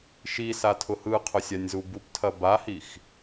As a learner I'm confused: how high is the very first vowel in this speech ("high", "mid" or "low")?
high